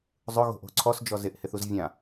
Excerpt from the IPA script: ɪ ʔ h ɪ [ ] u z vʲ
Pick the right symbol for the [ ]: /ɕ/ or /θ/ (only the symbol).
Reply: θ